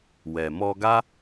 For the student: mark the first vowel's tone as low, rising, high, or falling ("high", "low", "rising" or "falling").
low